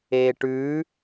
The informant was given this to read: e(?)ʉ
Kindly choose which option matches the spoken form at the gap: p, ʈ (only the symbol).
ʈ